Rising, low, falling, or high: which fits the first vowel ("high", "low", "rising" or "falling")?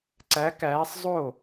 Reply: rising